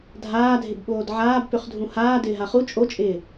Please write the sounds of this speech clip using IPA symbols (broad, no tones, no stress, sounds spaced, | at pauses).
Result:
dʱ aː dʱ ɪ b ɓ oː d ʕ aː b p ʏ χ dʱ ũ h aː d ɪː ɦ a χ u t͡ʃʼ o t͡ʃʼ ɪː